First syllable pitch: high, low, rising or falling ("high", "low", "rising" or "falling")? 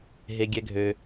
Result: low